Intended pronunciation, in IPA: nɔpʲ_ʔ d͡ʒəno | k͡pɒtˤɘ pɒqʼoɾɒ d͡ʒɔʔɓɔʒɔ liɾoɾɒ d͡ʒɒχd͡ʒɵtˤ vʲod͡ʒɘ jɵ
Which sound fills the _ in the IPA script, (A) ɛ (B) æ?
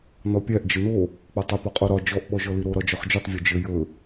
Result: B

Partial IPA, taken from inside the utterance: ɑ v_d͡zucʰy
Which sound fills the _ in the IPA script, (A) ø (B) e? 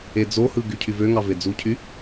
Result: B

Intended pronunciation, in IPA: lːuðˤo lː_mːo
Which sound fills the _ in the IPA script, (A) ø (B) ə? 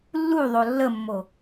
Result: B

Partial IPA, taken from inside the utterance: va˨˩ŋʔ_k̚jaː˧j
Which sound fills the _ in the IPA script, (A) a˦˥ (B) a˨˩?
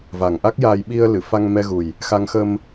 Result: A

